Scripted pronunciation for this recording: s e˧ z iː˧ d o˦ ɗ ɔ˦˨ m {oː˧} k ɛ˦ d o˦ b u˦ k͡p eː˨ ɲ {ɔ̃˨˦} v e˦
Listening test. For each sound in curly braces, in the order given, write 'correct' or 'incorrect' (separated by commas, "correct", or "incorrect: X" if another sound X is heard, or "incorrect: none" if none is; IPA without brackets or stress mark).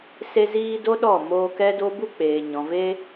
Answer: correct, incorrect: ɔ̃˨